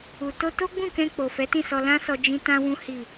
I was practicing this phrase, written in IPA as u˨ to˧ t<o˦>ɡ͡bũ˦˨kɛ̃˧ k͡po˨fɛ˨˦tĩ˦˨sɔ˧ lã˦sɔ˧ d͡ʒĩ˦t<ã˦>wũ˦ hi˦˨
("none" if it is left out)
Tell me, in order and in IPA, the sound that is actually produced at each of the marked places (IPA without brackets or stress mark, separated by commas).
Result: o˦, ã˦